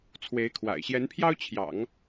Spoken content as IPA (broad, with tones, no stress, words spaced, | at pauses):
t͡sʰwe˧˥ɪ̯kʰwa̰˨˩ɪ̯ ɕjɛ˧˥npʰjɑ˥ʊ̯t͡ɕʰjɑ̰˨˩˦ŋ